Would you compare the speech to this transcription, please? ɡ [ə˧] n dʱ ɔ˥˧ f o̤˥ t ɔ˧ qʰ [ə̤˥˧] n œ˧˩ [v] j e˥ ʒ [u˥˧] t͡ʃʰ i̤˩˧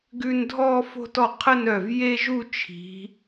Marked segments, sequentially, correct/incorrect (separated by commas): incorrect, incorrect, correct, correct